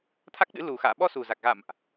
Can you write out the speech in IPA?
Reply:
t̪ʰa˦˥k̚ɗɨ̰˧˥ lu˨˩ xa̰ː˧˨ɓɔ˧su˨˩za˨˩k̚ ɣa̰˧˨mʔ

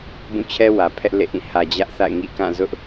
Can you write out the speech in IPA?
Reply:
bũ˦˨t͡ɕʰɛ˦ wä˨pʰɛ˦ʔ lḛ˦˨ʔĩ˦˨ hä˨ d͡ʑä˦ʔθa̰˦˨ɪ̯ŋḭ˦˨ kã˦˨zʊ˦ʔ

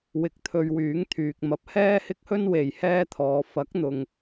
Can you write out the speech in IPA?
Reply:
wɪ˧k̚t̪ʰɵ˧ɥwyː˨˥ŋ t̪ʰyː˨k̚mɐ˧p̚ hɛː˥hɪ˥k̚hɵ˥n we˨jhɛː˥t̪ʰɔː˨ fɐ˨˥k̚n̪ʊ˨ŋ

